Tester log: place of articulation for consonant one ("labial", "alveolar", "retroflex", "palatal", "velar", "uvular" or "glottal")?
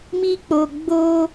labial